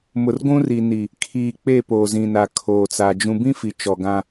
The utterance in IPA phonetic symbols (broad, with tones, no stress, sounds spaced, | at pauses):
m ʊ˨ r ɡʷ ũ˦ r i˨ n i˨ | kʰ iː˨ k͡p e˦˨ p oː˨ z ĩ˨ n a˨ kʰ oː˨ t͡s a˨ d͡ʒ ũ˨ b ĩ˦ f i˨ t͡ʃ ɔ˨ ɡ ã˦